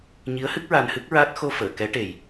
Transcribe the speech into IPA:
ɲi˧˥ə̯hɨ˦˥k̚ ɹa˧nhɨ˦˥k̚ɹa˦˥t̚ xo˧fəː˨˩˨ kɛ˧˥ʈe˨˩j

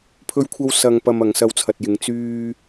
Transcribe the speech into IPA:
pʰɵ˧ɥkʷʰɐ˧w sɐ˧ŋpɐ˧m ɐ˨˧ŋsɐ˧wt͡sʰɐ˨t̚jɪ˨˧ŋ t͡syː˥

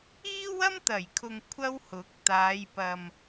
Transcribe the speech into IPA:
iː˥wɐ˥m t̪ɐ˨˩jkʰʊ˨ŋ kʷʰɐ˥whʊ˨˥k̚ t̪aː˨˧jpɐ˨m

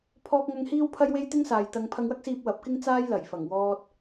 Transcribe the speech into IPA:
pʰɔː˧k̚ŋɐ˧ŋ hiː˥wpʰɐ˥jwe˥j t̪ɪ˥ŋsaː˨j t̪ɐ˧ŋ pʰɐ˧ŋwɐ˥k̚siː˧p̚ wɐ˨˥p̚kɪ˥ŋ t͡saː˥jlɐ˨˩jfɐ˨˩ŋwɔː˧t̚

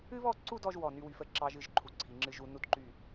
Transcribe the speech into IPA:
ɨ˥βɔ˥˧ǀu˥˧dɔ˧ʒ wɔ˧˩ny˧wy˩˧fə˥˧ ǁɑ˧ʒ ɨ˥˧ʒǃʰu˧˩ǀʰi˩˧ŋ͡ǁɨ˧ʒ u˩˧nu˧dǃy˧˩

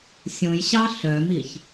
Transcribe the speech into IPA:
sʲõjɕɑ ɬœmiç

